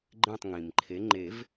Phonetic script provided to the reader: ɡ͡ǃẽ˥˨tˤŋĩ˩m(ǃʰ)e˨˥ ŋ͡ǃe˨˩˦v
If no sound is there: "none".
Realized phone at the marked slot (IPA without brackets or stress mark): ǃʰ